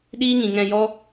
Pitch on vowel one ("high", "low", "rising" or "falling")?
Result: high